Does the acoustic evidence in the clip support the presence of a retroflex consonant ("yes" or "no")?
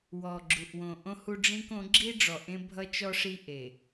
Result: yes